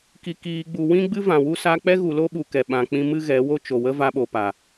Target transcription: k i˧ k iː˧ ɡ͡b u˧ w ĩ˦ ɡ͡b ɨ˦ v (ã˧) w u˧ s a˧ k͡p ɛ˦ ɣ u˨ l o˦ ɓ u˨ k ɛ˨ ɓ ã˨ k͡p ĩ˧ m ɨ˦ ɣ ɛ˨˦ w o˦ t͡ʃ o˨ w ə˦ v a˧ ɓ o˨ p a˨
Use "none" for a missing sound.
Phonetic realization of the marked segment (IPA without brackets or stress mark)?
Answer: ã˨